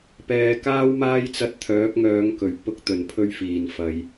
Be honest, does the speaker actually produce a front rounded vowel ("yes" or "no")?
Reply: yes